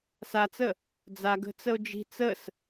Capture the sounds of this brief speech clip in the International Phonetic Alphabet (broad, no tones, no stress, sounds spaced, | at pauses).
s a t͡s ə | d͡z a ɡ ə̤ t͡s ə o̯ d͡ʒ i̤ t͡s ə s